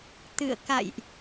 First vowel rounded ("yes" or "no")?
no